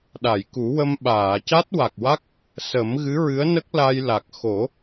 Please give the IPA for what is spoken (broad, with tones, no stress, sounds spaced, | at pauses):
ɗ a˨˩˨ j k u˨˩˦ w ə˧ m ɓ aː˨˩˨ c a˦˥ t̚ w a˨˩ k̚ w a˦˥ k̚ | s ə˨˩˦ m ɣ ɨ˧˥ ɹ ɨ˧˥ ə̯ n ə˦˥ k̚ l a˧ j l a˨˩ k̚ x o˨˩˦